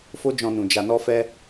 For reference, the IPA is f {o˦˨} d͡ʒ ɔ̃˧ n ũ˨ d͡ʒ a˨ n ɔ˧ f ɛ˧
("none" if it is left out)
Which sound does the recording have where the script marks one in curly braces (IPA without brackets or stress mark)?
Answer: o˦